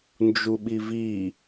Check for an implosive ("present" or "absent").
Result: present